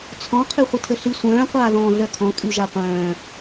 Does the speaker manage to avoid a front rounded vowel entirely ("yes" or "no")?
no